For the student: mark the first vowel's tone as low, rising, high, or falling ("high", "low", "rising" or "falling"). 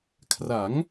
rising